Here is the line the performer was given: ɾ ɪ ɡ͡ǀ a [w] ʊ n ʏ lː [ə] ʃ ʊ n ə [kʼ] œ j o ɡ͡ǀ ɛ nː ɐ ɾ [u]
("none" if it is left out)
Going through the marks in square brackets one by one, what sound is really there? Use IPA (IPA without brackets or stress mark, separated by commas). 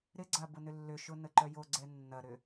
b, ʏ, ǃ, ʏ